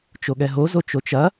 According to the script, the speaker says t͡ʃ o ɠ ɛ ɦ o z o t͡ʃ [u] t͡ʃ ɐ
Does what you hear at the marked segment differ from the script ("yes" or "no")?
yes